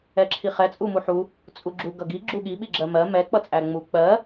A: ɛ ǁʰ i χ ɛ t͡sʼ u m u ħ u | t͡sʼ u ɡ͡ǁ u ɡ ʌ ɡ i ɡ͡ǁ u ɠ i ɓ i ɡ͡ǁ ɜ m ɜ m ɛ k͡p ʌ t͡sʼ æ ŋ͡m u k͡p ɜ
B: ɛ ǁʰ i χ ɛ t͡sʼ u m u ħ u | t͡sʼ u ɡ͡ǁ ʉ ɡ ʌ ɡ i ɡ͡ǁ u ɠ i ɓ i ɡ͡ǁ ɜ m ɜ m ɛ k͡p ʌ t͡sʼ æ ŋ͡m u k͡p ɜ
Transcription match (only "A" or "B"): A